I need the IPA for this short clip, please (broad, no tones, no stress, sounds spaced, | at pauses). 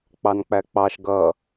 k͡p ɑ n k͡p æ k͡p ɑ ʃ ɡ ʌ